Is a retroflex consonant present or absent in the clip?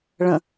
present